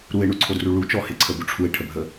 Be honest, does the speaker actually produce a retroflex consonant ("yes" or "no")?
yes